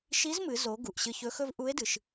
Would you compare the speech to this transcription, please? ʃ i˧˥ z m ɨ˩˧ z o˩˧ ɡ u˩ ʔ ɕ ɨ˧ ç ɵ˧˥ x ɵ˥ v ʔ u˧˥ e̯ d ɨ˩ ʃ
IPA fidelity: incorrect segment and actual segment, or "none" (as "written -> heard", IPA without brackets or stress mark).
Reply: none